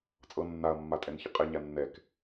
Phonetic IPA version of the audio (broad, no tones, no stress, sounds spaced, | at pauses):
t͡sʼ ɤ nː a ɐ̯ mː a tʼ ɛ n ç ə qʼ ɛ ɲ a nː ɛ k